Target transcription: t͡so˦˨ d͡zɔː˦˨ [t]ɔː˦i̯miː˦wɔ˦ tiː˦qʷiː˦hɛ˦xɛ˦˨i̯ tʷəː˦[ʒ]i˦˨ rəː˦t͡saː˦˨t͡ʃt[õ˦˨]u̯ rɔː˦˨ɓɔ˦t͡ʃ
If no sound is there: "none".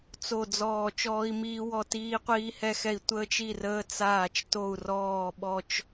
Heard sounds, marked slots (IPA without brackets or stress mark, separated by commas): t͡ʃ, t͡ʃ, o˦˨